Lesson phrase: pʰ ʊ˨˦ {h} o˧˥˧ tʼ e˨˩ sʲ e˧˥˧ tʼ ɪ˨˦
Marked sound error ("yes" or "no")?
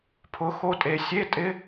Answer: yes